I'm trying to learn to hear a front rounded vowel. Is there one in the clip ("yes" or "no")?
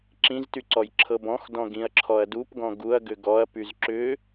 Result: yes